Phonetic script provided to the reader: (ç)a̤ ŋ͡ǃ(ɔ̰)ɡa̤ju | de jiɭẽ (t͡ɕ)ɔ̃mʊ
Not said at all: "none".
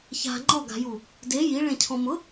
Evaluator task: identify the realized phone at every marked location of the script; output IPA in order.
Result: ç, ɔ, cʰ

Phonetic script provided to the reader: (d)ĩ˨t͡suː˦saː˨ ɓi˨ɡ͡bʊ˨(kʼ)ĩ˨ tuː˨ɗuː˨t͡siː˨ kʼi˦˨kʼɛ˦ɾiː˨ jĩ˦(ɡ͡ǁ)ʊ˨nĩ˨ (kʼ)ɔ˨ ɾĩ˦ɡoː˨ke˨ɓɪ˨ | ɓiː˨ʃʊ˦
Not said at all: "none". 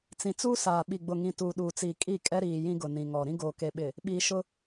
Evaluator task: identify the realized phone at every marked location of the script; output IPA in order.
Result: t͡s, ŋ, ɡ, ŋ

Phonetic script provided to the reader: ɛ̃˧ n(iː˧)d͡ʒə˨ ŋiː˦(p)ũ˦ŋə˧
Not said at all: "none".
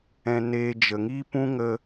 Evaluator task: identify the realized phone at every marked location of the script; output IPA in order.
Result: eː˧, p

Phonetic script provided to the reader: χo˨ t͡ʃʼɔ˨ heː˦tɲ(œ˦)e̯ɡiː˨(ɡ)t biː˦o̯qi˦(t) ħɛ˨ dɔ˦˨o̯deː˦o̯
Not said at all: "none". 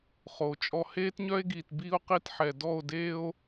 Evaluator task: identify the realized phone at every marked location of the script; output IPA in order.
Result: œ˦, none, t

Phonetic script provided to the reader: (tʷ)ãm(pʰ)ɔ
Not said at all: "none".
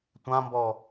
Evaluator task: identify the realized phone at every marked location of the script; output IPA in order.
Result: tʷ, b

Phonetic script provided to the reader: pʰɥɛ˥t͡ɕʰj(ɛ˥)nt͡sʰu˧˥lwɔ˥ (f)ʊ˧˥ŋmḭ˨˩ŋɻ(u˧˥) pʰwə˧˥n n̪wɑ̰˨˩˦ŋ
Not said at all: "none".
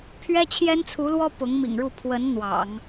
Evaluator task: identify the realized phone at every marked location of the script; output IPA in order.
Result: ɛ˥, p, u˥˩

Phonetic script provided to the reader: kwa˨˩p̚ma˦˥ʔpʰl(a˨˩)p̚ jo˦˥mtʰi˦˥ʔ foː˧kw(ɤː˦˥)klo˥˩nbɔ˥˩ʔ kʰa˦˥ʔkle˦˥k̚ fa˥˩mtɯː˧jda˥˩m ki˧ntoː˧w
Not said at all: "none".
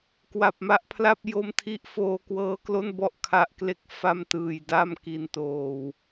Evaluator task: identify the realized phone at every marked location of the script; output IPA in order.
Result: a˥˩, ɤː˦˥

